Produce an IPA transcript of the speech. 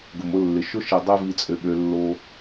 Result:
ɡ ʊ˨ m ʊ˦ lː ɪ˨ ʃ ʊ˦ ʃ i˨ dˤ ø˦ v i˦ t͡sʼ ø˦˨ ɓ ø˦ lː o˦

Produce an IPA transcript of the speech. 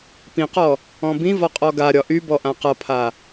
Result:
p ĩ q ɔ | ɔ̃ b ĩ v ɒ qʼ ɔ ɡ a ɾʲ ɒ ʔ y b ɔ ʔ ã q ʌ pʰ a

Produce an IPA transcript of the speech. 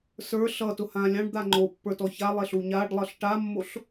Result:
s ə˞ ɬ ʌ t ʊ h ã lʲ ɑ̃ ɖ d̪ a ŋ͡ǃ o pː ə˞ t ɔ ç a lˠ e ɬ u ɲ a ɖ lˠ ʌ ɬ ʈ a mː o ɬ

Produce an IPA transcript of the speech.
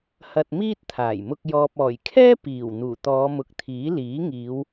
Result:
h ɐ˧ t̚ m iː˥ t̚ t̪ʰ aː˨˩ j m ʊ˧ k̚ j ɔː˨ p̚ ɔː˨˩ j kʰ ɛː˥ p iː˨˩ w n̪ uː˨˩ t̪ ɔː˨˧ m ʊ˨˥ k̚ t̪ʰ iː˨˥ l iː˨˥ ŋ iː˨˧ w

